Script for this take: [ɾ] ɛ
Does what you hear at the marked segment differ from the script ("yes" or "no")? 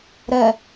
no